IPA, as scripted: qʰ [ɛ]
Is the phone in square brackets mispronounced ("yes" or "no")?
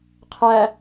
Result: yes